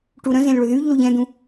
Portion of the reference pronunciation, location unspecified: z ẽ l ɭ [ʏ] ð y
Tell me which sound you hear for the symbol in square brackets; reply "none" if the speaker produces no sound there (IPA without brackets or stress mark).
ʏ